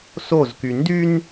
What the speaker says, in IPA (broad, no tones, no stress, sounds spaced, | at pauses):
s o z k y n d y n